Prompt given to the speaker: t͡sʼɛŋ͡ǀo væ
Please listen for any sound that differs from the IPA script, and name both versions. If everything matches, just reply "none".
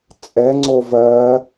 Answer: æ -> ɜ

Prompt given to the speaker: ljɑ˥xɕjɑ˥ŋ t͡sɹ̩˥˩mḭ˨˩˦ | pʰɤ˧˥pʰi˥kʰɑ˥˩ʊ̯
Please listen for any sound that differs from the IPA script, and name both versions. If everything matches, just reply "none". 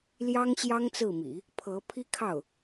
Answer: x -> ŋ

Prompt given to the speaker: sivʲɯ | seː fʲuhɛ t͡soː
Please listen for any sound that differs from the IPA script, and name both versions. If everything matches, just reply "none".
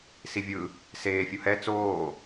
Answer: none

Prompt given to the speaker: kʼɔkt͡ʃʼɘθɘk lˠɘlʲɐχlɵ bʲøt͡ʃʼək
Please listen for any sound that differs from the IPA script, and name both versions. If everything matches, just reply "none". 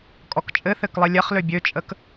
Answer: ɵ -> ø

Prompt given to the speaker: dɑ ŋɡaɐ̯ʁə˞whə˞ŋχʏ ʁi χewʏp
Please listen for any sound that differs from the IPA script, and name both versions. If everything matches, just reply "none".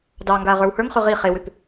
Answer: none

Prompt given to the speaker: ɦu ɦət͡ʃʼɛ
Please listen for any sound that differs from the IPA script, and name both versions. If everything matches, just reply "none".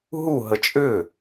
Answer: ɛ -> ʏ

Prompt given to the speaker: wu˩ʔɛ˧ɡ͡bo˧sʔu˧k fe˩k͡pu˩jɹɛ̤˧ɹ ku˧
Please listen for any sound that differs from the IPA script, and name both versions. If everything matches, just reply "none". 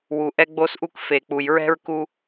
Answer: none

